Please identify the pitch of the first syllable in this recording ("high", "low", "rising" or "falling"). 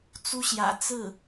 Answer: high